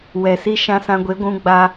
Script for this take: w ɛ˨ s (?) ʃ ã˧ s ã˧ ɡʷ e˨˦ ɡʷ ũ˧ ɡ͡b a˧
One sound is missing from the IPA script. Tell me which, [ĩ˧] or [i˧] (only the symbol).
i˧